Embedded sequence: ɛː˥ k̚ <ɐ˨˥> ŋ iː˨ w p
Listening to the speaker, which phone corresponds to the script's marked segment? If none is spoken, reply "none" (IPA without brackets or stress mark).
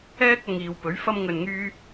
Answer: ɐ˨